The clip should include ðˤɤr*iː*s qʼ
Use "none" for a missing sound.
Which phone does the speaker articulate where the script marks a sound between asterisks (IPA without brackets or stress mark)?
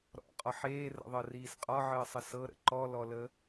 iː